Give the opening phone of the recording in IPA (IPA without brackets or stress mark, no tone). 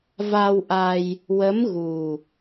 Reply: v